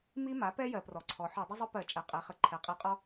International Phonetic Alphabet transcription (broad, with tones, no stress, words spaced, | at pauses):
mi˥ma˩˥pɛ˥ jɜ˧˩˧prɔ˩˥ǀʰɔ˩˥ ħɔ˧˩˧dˤə˥zˤʏ˥pɜ˧˩˧ t͡ʃʼɛ˩˥qʼe˩˥χə˩˥ ǃʰɛ˩˥qʼi˧˩˧qʼɔ˥